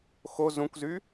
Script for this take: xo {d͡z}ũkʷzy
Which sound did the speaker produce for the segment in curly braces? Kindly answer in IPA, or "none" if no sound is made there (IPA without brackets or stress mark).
z